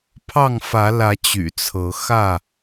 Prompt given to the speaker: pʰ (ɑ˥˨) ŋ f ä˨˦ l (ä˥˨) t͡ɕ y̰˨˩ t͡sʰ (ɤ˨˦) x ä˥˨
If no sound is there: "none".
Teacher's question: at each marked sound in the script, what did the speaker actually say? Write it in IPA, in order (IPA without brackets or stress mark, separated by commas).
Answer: ɑ˥˨, ä˨˦, ɤ˨˦